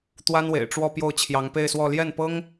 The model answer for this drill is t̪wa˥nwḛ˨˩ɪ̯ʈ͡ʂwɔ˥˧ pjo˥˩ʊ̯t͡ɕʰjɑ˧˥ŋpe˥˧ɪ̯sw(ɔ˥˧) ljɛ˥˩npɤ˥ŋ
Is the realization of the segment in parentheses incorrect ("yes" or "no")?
no